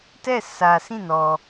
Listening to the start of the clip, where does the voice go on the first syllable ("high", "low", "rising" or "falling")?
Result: falling